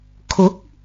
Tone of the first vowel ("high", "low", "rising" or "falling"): rising